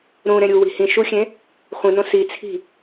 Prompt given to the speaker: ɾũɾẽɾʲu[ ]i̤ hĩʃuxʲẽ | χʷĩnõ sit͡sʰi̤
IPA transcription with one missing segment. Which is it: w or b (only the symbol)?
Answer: w